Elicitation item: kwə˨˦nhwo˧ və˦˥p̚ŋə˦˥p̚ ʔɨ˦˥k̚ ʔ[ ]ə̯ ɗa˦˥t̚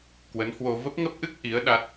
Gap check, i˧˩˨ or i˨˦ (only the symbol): i˨˦